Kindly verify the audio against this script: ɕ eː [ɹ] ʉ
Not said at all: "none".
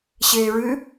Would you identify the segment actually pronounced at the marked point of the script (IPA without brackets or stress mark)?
ɹ